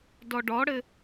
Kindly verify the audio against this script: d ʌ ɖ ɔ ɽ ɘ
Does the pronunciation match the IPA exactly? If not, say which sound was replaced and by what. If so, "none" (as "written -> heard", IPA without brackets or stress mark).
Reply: ʌ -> ɔ